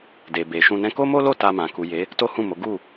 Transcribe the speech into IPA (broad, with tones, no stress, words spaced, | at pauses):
de˨ be˨ʃũ˧nɛ̃˦ ko˦mo˦lo˦˨ ta˧mã˨ ku˨je˨˦ | to˦hũ˦˨mo˨˦ ɡu˦˨